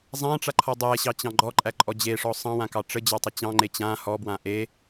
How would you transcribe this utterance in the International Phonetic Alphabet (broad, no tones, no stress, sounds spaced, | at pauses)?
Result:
zˤ ã ʈ͡ʂ a ǃʰ ɔ dˤ æ ɕ ɑ t͡ɕ ɑ̃ ɡ͡ǃ ɔ ǃʼ æ ǃʼ ɔ d͡ʑ e ʂ ɔ sˤ ɑ̃ w ã k ɑ ʈ͡ʂ ə d͡ʑ ɑ tˤ ɐ t͡ɕ ɑ̃ ŋ͡ǃ e t͡ɕ ã h ɔ b w ã ʔ e